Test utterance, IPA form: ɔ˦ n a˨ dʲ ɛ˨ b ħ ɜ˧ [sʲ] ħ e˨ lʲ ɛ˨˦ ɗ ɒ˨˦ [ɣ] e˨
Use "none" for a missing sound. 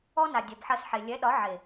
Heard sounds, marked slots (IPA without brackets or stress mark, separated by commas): s, ʕ